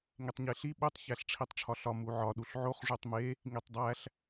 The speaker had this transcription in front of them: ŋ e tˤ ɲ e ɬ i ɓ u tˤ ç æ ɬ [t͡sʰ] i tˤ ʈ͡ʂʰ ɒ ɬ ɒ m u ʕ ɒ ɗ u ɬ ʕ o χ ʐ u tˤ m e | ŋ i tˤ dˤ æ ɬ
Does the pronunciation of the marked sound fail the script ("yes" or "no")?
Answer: yes